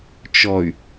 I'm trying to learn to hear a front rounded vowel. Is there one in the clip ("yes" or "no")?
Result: yes